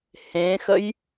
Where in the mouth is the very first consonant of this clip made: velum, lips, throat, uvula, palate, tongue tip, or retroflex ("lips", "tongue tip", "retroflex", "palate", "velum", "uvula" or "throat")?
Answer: throat